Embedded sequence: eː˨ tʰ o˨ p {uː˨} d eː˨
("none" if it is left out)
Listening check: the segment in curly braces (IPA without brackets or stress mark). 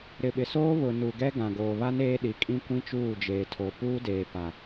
uː˦